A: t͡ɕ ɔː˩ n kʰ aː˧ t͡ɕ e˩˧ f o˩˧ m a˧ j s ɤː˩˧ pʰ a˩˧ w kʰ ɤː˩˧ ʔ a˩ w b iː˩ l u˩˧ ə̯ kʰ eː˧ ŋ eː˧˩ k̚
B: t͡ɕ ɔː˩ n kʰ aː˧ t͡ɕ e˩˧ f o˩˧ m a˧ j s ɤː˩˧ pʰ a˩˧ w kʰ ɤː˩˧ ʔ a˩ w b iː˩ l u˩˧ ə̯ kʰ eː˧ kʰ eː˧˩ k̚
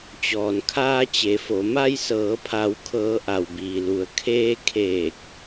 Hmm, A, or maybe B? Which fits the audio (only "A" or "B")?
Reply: B